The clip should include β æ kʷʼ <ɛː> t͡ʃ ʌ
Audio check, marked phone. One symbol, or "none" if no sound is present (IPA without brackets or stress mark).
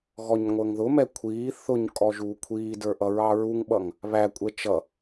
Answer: ɛ